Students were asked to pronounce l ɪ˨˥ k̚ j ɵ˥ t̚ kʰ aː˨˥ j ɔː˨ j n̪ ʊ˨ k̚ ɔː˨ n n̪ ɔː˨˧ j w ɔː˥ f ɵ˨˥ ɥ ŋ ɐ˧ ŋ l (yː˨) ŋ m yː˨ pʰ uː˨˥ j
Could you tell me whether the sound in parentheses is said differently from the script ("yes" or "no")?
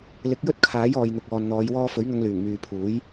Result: yes